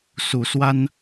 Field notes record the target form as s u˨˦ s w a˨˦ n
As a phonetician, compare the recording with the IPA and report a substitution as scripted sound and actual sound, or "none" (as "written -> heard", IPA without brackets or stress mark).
a˨˦ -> a˦